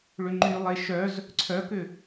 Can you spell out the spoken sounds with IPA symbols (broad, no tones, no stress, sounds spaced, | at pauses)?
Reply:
ɭ ʏ ŋ͡ǃ y lˠ e ʃ œ z | ǀʰ œ k ʏ